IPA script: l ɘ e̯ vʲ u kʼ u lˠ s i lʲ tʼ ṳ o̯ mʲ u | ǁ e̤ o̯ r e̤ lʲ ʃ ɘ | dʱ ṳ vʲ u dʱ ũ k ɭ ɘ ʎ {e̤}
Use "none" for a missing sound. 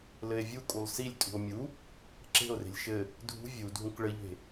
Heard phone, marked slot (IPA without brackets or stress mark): e̤